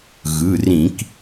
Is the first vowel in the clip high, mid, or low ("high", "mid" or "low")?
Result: high